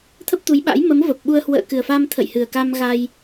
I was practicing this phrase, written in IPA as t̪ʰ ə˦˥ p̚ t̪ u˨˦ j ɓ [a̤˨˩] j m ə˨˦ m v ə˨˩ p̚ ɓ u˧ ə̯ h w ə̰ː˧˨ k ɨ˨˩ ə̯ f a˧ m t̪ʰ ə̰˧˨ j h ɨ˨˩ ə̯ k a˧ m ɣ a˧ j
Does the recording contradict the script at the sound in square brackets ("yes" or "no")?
yes